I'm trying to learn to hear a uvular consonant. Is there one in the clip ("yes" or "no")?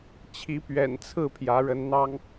no